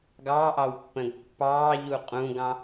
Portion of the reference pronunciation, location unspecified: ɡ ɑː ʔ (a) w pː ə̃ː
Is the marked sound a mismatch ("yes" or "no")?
yes